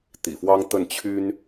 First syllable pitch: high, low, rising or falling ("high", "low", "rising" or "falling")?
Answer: low